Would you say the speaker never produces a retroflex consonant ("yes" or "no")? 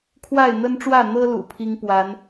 no